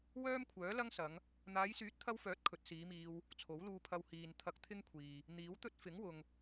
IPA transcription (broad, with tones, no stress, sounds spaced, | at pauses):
w œː˥ m kʷʰ œː˨˥ l ɐ˥ ŋ s ɐ˨˧ ŋ | n̪ aː˨˧ j s yː˨˥ t̚ t̪ʰ ɐ˧ w f œː˨˥ t̚ kʰ ɵ˨˥ t̚ s iː˨˧ m iː˧ w | t͡sʰ o˨˥ w l uː˧ pʰ ɐ˧ w h iː˨ n t̪ʰ ɐ˧ k̚ t̪ʰ ɪ˥ ŋ kʷʰ iː˨ | n̪ iː˨˥ w t̪ ɵ˥ t̚ f ɪ˨˥ ŋ w ʊ˨ ŋ